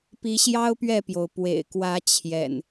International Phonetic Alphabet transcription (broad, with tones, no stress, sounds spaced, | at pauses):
p i˨˦ ɕ j ɑ˦ ʊ̯ p ɥ ɛ˥˨ p j o˩ ʊ̯ p w ḛ˨˩ ɪ̯ k w ä˨˦ t͡ɕʰ j ɛ̰˨˩ n